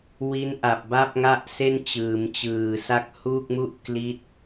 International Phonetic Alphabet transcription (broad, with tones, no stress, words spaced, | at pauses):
wi˦˥nʔa˨˩p̚ba˥˩p̚ ŋa˥˩ʔse˥˩n t͡ɕɯː˩˦mt͡ɕɯː˨˩ sa˦˥k̚huː˥˩k̚mu˥˩ʔ kli˦˥t̚